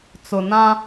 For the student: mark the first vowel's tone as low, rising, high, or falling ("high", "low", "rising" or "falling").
low